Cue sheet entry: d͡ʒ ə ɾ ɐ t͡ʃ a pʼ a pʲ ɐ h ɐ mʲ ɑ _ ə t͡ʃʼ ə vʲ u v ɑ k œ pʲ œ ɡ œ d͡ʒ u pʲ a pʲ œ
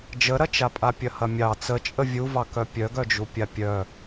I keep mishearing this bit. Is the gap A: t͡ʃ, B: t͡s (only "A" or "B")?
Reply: B